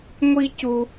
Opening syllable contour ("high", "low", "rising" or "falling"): high